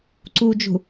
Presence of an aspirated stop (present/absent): absent